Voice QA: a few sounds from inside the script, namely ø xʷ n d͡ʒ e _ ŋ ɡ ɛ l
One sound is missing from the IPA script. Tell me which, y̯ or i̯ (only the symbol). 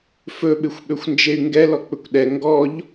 y̯